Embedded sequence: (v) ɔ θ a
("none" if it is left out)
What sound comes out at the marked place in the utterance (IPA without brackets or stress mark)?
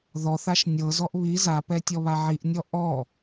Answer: ð